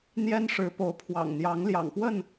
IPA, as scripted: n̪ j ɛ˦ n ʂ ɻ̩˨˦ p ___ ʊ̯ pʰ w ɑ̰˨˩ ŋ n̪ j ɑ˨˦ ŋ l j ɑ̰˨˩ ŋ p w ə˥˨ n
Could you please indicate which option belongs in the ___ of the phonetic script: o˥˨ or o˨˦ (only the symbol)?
o˨˦